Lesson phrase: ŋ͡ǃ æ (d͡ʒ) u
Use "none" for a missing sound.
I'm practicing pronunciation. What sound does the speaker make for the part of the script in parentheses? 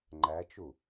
t͡ʃ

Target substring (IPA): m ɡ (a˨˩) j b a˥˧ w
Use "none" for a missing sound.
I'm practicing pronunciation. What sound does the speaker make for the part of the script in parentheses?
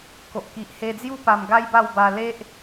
a˦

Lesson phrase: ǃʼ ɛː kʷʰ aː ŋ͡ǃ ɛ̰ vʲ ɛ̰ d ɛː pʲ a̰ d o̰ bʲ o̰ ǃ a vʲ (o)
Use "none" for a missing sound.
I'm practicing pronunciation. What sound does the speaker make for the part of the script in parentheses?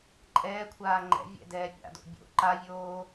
oː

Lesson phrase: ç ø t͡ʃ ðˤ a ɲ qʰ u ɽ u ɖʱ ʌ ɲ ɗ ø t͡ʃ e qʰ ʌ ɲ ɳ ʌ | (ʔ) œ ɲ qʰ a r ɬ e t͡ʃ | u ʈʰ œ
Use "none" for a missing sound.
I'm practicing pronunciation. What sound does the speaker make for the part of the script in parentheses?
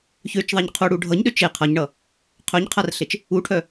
qʰ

